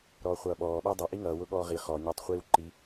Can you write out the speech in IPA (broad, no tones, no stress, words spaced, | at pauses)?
ɾɔːχʷʌːɓɔː ɓædˤʌ ʔiŋʌː wʊɠɔːʁi χɔ ɲʌːtˤχʷiːwǃi